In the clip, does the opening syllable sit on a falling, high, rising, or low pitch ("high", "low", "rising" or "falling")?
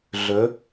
rising